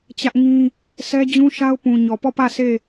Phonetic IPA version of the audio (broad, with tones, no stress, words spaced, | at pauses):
t͡ɕä˦ʔŋĩ˦ | sʰɛ˦d͡ʑũ˦ʃa˦ʊ̯ pũ˨ ɲɔ˨pɔ˦˨pä˦˨ se˦˨